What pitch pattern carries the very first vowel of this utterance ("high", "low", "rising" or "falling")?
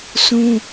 high